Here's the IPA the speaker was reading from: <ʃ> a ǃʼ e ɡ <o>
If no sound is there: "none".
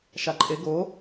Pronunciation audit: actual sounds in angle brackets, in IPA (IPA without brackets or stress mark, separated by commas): ʃ, o